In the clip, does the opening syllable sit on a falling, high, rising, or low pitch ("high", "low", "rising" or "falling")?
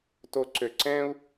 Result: low